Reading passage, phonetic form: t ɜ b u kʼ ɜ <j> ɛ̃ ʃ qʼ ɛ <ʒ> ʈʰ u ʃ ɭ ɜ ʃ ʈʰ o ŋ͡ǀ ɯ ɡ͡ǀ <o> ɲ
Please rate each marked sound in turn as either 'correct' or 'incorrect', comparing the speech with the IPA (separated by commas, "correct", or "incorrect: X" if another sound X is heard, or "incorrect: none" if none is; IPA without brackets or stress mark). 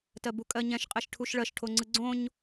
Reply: incorrect: ɲ, incorrect: ʃ, incorrect: õ